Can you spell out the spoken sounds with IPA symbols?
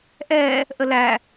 ʔ ɛ | ʔ ə l æ

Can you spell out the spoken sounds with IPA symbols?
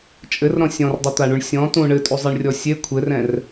t͡ʃʼ ɘ r ɾ ɔ̃ sʲ ɔ̃ r dˤ ɘ t̪ a ɳ u ɳ sʲ ɔ̃ t ũ ɳ ɘ tʼ u zˤ i ɳ rʲ ɔ sʲ e kʷʰ ɘ r ɛ̃ r

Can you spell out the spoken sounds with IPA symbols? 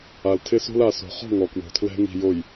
a˨ l tʰ ɪ˦ s o̤˦ l a˨ s o̤˨ χ ɔ̤˦˨ ŋ ɔ˨ k w o̤˨ tʰ l ɛ̤˦ ŋ i̤˨ j o˨ j

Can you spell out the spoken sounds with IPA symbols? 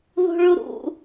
ð ṳ ɭ u ɾ ṵ

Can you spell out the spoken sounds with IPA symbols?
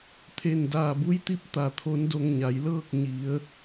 t̪ʰ e˧˩ n d aː˧˩ b u˧˥ j t̪ i˧˥ p̚ t̪ a˧˩ t̪ʰ o˧˥ n d o˧ ŋ ɲ a˩˧ j l ɤː˥˨ k̚ ɲ i˩˧ ə̯

